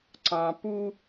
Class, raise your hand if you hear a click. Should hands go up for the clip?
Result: yes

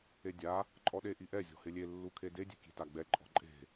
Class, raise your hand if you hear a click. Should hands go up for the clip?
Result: yes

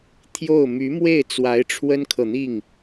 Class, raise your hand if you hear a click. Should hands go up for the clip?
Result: no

